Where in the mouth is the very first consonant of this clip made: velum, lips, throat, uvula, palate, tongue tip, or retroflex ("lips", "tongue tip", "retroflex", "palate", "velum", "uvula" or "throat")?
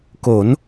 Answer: velum